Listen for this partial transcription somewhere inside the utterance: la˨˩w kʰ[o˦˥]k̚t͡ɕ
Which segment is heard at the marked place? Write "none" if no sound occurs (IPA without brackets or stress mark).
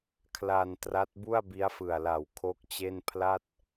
o˦˥